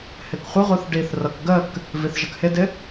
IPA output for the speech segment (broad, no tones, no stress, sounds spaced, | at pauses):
h ɪ k χʷ ɪ ʁʷ ɯ θ ɖ i θ r ʌ k ɡ ə k | v i θ ʒ ə k h ɪ d ɪ